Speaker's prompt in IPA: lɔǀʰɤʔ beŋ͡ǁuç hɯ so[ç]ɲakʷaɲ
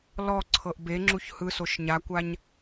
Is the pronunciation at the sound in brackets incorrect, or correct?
incorrect